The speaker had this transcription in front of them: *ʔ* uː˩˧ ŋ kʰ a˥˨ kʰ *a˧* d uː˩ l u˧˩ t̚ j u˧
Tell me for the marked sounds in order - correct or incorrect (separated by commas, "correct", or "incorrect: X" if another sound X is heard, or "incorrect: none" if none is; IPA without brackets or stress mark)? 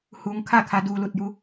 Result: incorrect: h, incorrect: a˩˧